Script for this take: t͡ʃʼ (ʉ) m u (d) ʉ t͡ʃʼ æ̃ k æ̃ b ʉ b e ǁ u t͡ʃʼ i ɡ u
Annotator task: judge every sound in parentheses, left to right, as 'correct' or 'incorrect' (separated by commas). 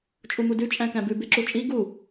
incorrect, correct